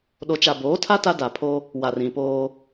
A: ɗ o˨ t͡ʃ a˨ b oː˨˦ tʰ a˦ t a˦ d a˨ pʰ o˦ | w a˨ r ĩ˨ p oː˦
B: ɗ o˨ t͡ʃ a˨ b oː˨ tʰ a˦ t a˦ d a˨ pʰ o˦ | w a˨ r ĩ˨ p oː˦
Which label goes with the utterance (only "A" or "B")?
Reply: A